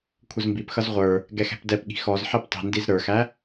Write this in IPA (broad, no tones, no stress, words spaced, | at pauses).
kʷʰəzmbipxʌz ʁʷə˞ | ɡɛxɛ̤pdɛpɠi̤ xɔz ħɛptˤi̤ndiz ɾə˞xæ